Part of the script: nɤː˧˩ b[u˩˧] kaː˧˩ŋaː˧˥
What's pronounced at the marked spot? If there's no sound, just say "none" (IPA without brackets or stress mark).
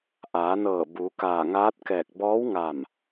u˩˧